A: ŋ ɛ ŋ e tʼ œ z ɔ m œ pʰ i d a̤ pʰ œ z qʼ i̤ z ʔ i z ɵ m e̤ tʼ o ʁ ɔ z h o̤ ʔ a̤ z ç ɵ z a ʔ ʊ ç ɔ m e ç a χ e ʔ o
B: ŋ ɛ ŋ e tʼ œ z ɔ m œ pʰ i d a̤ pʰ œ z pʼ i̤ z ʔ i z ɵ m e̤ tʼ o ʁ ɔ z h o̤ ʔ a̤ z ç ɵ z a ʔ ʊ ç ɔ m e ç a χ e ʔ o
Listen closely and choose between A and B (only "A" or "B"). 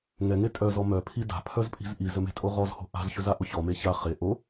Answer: B